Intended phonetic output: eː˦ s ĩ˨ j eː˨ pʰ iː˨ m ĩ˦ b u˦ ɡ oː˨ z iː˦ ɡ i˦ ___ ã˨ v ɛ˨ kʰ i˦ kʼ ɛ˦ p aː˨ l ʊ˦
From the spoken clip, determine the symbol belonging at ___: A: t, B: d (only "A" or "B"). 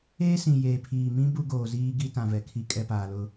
A